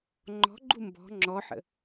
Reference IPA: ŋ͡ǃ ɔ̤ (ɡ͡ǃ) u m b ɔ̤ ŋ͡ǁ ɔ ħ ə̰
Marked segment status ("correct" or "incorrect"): correct